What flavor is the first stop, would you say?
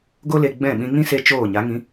plain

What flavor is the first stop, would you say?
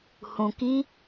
plain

